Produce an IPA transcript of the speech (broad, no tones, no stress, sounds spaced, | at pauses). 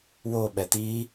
w o ɓ ɛ t̪ i